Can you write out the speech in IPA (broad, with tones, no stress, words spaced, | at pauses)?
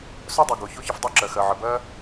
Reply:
sœ˥dˤu˩ɡo˩ ço˥çə˧fdˤœ˥ǁɜ˩ xɜ˩ʕə˩bɜ˥